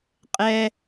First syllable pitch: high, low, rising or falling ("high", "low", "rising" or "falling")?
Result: low